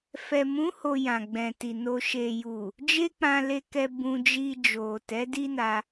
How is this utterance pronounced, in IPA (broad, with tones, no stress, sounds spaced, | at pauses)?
f ɛ˨ m ũ˨˦ h o˧ j ã˨ ɡ͡b ɛ̃˨ t i˨ n o˨ ʃ e˨ j u˨ | d͡ʒ e˦ k͡p ã˧ l e˧ k ɛ˧ b ũ˧ d͡ʒ i˧ d͡ʒ o˨ t ɛ˨˦ d i˦ n a˧